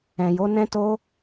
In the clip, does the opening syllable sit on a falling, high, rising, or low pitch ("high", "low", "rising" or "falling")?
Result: low